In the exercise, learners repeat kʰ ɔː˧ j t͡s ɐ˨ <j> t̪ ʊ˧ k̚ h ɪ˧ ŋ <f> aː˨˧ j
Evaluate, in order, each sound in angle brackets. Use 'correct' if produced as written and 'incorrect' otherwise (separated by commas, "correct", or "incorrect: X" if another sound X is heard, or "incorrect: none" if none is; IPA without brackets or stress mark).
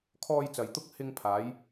correct, incorrect: pʰ